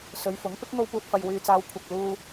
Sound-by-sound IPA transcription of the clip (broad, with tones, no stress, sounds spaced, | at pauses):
s ɵ˨˧ ɥ f ʊ˨˥ ŋ p ɪ˨˥ k̚ ŋ o˧ w p uː˨ t̚ f ɐ˨ j w yː˨ t͡s aː˨˧ w kʷʰ ɐ˨ k̚ l uː˧